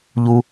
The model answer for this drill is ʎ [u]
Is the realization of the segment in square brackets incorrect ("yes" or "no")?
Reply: no